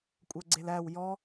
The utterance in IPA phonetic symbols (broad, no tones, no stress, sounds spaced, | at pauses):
kʷʼ ɜ ɡ͡ǀ e l æ w j ɔ